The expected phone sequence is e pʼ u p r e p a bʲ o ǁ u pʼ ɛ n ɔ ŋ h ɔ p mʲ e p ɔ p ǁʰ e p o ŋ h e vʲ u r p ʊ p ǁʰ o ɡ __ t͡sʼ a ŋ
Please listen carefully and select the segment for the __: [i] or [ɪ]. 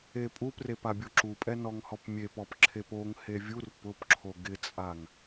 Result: ɪ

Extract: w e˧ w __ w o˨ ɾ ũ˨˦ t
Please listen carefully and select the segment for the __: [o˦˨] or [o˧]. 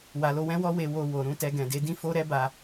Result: o˧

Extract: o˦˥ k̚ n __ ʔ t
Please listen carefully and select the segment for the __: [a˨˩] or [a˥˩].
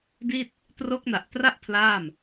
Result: a˨˩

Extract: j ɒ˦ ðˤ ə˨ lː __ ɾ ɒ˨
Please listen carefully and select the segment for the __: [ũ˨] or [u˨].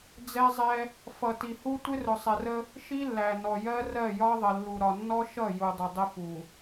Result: u˨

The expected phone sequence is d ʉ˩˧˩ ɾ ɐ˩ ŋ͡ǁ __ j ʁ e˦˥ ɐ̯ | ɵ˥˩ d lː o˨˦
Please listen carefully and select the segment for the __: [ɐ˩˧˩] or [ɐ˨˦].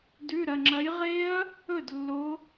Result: ɐ˨˦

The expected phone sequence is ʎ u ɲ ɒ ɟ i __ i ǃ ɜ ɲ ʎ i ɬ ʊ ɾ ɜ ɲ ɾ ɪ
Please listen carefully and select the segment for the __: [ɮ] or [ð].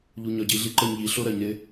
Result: ɮ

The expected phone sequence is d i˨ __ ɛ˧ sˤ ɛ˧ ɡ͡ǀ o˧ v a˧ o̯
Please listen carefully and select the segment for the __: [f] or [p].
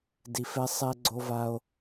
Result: f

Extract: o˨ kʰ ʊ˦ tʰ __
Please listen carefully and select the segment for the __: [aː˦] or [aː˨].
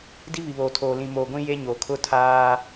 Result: aː˦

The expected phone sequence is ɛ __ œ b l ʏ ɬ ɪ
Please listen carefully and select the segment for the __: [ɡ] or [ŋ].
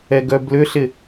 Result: ɡ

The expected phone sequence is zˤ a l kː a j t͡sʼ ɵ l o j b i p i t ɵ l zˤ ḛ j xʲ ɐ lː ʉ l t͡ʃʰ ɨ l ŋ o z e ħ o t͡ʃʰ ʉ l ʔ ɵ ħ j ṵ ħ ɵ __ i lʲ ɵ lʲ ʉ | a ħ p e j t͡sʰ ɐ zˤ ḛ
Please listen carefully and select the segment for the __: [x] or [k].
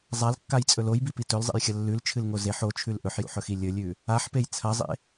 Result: x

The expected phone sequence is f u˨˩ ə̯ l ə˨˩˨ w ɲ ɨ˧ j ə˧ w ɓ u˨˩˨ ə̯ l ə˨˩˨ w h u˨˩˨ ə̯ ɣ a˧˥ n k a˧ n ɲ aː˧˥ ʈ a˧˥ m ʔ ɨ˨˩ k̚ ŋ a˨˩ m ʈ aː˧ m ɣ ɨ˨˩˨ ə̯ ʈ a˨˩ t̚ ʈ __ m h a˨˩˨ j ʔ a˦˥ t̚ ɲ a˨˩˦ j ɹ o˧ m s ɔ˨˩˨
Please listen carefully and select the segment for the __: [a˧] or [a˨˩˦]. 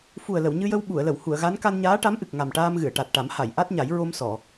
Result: a˨˩˦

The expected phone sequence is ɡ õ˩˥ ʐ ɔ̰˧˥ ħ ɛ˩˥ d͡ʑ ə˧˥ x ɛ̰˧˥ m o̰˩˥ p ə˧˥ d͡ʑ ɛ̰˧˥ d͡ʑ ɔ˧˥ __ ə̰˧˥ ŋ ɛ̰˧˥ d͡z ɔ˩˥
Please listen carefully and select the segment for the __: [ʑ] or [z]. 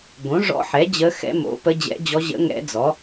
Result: ʑ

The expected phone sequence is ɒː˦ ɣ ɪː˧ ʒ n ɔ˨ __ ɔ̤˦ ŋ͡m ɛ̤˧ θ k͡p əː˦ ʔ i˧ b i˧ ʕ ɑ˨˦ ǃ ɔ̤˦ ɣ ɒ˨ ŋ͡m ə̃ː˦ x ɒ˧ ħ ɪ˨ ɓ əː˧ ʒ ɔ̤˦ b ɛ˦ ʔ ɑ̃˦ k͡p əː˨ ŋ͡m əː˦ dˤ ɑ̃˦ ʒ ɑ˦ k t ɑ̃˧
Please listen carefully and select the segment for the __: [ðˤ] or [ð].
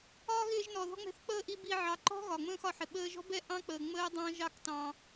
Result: ð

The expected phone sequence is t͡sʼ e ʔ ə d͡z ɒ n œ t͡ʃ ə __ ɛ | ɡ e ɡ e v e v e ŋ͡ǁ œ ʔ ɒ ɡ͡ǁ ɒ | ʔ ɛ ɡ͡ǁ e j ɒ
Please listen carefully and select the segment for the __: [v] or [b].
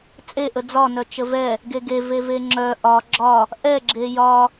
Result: v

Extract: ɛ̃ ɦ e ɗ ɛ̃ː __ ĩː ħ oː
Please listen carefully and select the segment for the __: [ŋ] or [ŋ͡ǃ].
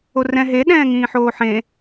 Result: ŋ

